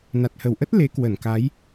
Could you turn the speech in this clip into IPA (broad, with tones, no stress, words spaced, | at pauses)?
na˨˩t̚hə˧˩wʔə˦˥t̚ le˨˦kwə˧˩nka˨˦j